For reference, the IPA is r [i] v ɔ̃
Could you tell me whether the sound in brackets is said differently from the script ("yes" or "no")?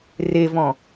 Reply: yes